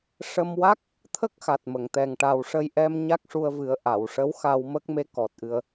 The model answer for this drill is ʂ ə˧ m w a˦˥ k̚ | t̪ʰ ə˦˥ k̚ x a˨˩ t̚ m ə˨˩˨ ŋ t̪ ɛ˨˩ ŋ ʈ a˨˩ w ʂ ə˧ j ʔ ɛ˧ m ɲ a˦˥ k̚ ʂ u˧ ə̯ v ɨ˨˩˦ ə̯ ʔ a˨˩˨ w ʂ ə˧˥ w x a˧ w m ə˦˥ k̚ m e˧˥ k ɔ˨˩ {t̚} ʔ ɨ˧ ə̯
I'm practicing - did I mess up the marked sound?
no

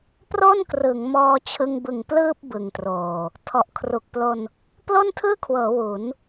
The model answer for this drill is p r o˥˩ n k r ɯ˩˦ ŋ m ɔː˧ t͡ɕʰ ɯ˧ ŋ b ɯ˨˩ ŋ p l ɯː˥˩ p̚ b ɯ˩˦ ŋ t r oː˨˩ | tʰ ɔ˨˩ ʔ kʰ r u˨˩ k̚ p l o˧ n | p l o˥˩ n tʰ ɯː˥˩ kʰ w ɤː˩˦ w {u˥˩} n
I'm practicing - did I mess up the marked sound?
yes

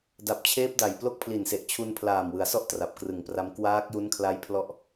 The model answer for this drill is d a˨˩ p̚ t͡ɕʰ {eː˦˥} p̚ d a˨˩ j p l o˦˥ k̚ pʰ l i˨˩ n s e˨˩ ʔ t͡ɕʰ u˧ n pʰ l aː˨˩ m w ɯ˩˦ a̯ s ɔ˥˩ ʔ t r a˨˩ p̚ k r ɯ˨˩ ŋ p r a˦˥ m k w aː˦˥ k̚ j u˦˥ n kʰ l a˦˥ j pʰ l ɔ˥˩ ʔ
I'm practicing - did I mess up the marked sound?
no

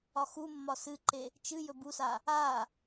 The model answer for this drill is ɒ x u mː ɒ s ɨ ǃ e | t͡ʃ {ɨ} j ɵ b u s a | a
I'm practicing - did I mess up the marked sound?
no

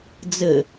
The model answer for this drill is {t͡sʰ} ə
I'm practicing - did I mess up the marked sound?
yes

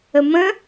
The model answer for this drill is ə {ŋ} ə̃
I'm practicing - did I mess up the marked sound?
yes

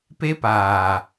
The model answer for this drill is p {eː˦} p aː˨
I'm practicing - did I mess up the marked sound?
yes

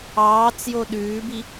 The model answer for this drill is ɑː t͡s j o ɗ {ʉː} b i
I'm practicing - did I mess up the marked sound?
no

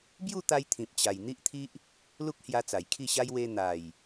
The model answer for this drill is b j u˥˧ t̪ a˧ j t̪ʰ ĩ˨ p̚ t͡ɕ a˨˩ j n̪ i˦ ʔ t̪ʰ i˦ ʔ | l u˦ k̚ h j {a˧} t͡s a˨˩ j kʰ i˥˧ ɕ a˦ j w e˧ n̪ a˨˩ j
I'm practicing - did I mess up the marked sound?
no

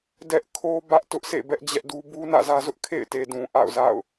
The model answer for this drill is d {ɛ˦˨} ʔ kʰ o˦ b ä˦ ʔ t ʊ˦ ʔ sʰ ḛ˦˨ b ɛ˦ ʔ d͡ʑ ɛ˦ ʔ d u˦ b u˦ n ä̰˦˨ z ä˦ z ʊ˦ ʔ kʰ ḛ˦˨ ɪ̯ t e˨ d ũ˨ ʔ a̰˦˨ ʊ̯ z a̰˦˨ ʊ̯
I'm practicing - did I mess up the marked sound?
yes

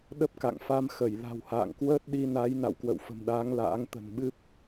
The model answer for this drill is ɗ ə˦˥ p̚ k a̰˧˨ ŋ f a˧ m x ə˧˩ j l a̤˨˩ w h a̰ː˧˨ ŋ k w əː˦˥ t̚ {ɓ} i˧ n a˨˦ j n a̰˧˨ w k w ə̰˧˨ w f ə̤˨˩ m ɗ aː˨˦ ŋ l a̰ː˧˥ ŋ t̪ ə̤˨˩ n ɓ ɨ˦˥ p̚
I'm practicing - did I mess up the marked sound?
yes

